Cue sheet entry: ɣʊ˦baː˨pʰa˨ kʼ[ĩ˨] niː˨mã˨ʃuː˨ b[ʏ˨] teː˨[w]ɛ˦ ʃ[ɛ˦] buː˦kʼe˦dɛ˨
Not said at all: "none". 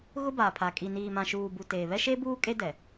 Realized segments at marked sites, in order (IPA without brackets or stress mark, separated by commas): i˨, u˨, β, e˦